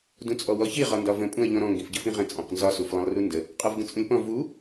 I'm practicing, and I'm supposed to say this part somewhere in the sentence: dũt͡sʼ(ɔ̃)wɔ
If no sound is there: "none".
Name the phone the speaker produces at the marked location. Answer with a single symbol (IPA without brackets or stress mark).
ɔ